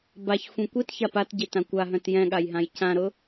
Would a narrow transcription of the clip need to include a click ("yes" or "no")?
no